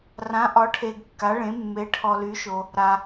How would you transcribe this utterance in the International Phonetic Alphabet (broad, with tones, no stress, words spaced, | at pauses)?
rã˧˥ʔɒ˧˥ʈʰe˧ɡ kːa˧˥ɭẽ˧˥ mːe˧˥ʈʰɔ˧ ly˧˥ʃo˧ | ɾa˧